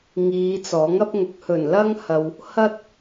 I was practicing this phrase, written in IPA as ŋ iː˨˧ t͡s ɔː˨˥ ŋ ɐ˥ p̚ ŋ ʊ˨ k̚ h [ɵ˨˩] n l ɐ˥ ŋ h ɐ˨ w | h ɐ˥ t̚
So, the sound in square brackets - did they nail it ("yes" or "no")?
yes